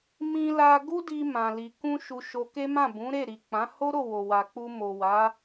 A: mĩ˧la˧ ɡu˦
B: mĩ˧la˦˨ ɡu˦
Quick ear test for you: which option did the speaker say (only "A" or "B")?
A